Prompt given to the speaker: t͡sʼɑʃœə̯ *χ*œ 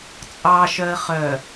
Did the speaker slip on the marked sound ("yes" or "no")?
no